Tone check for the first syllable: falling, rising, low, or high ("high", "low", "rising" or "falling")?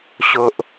low